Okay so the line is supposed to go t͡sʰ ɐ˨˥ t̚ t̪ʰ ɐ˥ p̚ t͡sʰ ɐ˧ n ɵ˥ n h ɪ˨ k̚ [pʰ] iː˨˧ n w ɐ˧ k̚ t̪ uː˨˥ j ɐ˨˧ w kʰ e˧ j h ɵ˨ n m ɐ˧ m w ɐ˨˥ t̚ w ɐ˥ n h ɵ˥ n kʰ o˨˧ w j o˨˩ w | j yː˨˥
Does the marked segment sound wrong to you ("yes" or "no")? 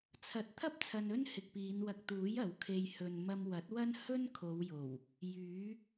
yes